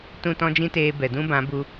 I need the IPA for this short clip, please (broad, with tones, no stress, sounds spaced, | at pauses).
t ũ˦˨ t ɔ̃˦ d͡ʒ ĩ˦ t eː˧ b ɛ˨ d ũ˦ b ã˨˦ b u˧